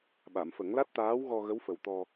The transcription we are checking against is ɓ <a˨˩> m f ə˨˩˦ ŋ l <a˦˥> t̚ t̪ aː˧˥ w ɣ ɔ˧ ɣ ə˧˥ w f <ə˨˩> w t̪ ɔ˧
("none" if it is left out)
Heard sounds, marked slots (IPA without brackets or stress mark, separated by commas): a˨˩˨, a˦˥, ə˨˩